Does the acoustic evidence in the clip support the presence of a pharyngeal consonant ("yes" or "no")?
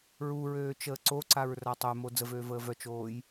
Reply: no